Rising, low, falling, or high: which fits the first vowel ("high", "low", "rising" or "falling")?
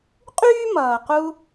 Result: high